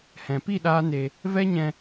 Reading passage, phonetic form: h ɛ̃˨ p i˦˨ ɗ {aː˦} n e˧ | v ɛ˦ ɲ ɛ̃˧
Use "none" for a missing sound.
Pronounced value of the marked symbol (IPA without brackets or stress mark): aː˦